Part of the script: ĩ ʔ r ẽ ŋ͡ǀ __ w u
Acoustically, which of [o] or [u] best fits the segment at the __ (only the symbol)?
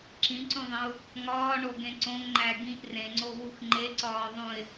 o